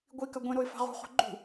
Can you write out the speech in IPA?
ɡʷikɐ ɡʷẽɾoɪ̯ fa̤ʁṳχo̤ ɡ͡ǃṳ

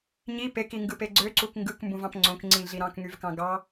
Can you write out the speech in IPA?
ɲi pekiŋɡɯpe ɡ͡ǀøǀuk ŋɡɯkmbũvɑ̃p ŋ͡ǀõkŋ͡ǀĩɮi ɾɑ̃kŋyvkɑ̃ ɡɑ

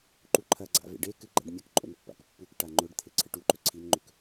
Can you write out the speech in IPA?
ǃuǃʰɐɡ͡ǀa̰ vḛɖekɨ ɡ͡ǃa̰ɖmʲɐkǃʼo̰n pːa̰kpːukʈa ŋ͡ǃɵɖt̪ʰe ǀʰɨʈuǃɵ ǀʰinŋ͡ǃɵk

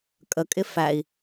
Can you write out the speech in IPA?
kʼəkʼɪ fæi̯

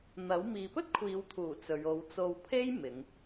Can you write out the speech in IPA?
n̪ɐ˨˥w miː˨pɵ˥t̚kʷʰiː˨˧wt̪ʰuː˨˩ t͡sɵ˨˧ɥ o˨˧wt͡so˧wpʰe˥j mɪ˨˧ŋ

